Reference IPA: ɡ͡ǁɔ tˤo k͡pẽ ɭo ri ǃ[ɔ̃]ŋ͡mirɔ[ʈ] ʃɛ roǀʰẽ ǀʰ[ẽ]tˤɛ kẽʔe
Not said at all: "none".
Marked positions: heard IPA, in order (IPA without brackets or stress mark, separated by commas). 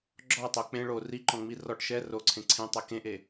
ɔ̃, ʈ, ẽ